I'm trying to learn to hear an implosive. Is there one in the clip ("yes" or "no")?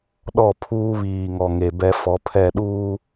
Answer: yes